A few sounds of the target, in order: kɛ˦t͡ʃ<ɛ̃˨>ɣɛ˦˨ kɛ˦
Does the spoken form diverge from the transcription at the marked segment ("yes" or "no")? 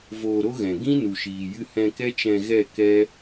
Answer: yes